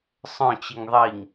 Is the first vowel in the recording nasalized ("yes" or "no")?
yes